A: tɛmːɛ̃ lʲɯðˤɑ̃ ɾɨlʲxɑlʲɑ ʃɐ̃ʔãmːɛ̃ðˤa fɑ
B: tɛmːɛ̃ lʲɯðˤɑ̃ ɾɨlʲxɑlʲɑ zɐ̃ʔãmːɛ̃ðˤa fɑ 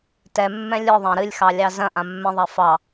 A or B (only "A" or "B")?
B